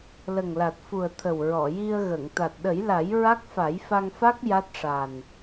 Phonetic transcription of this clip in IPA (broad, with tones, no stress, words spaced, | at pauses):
lə˨˩ŋla˨˩t̚fu˨˩ə̯ t̪ʰə˨˩wɹɔ˨˩˨ji˧ə̯ɣə˨˩˨ŋ t̪a˨˩t̚ɗə˨˩˦jla˨˩˦j ɹa˦˥k̚fa˨˩˦jfa˧ŋfa˦˥k̚ ja˦˥t̚ʂa˨˩n